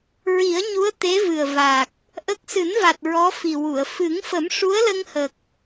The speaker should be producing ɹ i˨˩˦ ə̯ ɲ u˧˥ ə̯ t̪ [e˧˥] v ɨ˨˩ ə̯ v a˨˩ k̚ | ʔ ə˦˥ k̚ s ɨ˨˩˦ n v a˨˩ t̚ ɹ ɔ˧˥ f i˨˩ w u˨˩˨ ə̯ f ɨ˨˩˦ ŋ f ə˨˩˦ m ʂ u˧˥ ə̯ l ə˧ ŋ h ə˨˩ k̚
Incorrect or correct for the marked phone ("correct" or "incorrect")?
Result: correct